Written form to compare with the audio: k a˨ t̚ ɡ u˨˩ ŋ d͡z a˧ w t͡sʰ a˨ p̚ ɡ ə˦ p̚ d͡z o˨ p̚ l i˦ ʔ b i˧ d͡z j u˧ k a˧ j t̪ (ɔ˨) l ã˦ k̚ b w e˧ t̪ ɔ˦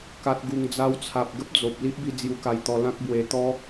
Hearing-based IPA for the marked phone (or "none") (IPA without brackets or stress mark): ɔ˧